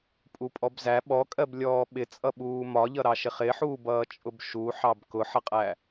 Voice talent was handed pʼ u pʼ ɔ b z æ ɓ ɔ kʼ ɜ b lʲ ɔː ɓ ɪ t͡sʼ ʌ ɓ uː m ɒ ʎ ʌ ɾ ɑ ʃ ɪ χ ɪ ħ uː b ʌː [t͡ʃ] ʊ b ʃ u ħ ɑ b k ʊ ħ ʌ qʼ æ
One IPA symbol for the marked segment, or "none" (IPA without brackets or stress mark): t͡ʃʼ